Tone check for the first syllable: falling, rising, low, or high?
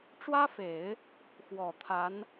high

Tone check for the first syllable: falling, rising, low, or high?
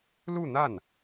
falling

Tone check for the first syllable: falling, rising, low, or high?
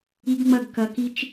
high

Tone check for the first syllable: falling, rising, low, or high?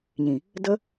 low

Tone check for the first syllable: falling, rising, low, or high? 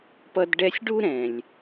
high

